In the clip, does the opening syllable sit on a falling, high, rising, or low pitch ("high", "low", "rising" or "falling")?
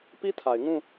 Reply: high